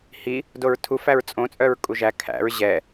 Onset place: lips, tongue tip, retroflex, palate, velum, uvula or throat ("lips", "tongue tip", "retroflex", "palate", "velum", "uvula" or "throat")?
throat